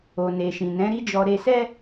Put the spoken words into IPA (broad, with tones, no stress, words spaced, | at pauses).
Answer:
o˨ ne˨ʃĩ˨nɛ̃˨˦ ɾi˦d͡ʒɔ˧ ɾe˧sɛ˦